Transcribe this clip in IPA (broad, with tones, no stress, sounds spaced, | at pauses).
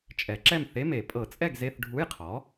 t͡ʃʼ ɛ˨˩˦ ǁ ɛ˥˨ m θ e˧˥˧ m e˨˩˦ pʼ ɤ˨˩˦ t͡sʼ ɛ˥˨ ɡ z e˧˥˧ θ ɖʱ u˧˥˧ j qʰ ɔ˩˥